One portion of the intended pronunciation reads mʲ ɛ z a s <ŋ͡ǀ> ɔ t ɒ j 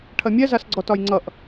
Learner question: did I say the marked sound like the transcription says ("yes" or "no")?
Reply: no